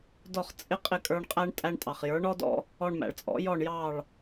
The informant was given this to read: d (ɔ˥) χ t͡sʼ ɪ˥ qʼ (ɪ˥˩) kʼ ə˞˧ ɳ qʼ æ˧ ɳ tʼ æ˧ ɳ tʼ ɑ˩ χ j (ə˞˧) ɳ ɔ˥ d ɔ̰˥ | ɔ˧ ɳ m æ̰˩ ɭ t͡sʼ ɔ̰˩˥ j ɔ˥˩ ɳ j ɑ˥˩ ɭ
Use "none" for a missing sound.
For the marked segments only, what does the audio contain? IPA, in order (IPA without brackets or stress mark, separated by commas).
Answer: ɔ˥˩, ɪ˥˩, ə˞˩˥